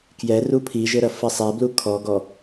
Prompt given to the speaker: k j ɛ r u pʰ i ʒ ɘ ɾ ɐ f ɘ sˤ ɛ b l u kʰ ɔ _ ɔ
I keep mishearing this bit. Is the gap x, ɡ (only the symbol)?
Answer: ɡ